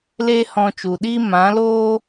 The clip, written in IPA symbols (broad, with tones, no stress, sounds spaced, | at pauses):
l eː˦ h ɔ̃˧ t͡ʃ u˨ ɗ iː˦ m ã˨˦ l oː˦